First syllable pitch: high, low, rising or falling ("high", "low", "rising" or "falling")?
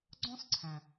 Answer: high